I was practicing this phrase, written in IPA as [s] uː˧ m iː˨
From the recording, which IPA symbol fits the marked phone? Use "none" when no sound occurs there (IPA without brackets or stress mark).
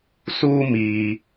s